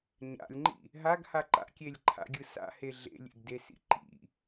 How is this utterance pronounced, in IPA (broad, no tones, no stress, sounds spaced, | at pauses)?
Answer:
ɲ a̰ lʲ ŋ͡ǃ ḭ | ɦ a ɡ h a ǃ a̰ kʲ e lʲ ǃʰ a̰ ɡʲ ɯ s a̰ h e ɮ ḛ lʲ ḛ ɡ d e s ḭ ǃ ḭ